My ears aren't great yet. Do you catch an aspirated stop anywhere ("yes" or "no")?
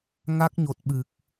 no